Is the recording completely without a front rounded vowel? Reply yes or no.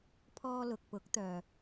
no